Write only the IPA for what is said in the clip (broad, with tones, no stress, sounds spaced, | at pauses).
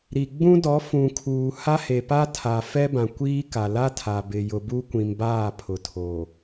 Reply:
ɾ i˨ ɡ͡b ũ˦ d ɔ˨˦ f ũ˨ kʰ uː˨ h a˦ h e˨ p a˦ tʰ a˨ f ɛ˦ b ã˨ kʷ iː˦ k a˨ l a˦ tʰ a˨ b ɪ˨ j ʊ˨ b u˦ kʷ ĩ˨ m b aː˦˨ pʰ ʊ˨ tʰ oː˨